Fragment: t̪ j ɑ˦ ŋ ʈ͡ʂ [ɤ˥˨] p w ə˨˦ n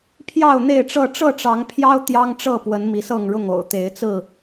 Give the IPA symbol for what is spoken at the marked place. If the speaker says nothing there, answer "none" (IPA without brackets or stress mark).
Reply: ɤ˥˨